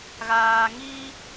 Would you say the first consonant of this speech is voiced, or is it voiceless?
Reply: voiced